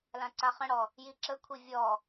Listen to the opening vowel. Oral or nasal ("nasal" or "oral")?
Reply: nasal